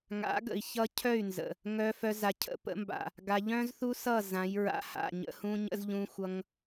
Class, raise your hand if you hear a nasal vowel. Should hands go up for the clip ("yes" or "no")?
yes